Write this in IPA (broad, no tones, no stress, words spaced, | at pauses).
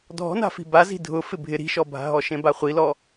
dʱɔ̤na̤fi̤ bazi̤ dʱʊ fɪbʱɪ ɾi̤ʃɔbʱa̤ɦɔ ʃẽbaχʷilɔ